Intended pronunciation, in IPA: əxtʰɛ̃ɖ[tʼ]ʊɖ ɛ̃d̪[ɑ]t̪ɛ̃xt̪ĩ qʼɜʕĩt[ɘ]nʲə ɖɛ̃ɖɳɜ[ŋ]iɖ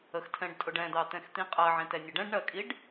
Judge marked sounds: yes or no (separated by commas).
yes, yes, no, no